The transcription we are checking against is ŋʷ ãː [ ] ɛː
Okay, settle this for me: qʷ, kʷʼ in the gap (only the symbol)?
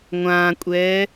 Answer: kʷʼ